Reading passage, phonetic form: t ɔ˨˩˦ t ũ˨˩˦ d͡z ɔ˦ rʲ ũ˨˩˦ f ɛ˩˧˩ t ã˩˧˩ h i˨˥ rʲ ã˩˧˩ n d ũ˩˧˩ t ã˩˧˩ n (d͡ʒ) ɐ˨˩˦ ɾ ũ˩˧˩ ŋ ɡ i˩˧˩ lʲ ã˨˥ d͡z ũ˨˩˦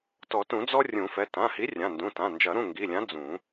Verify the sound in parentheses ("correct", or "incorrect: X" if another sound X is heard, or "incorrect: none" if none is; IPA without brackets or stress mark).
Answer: correct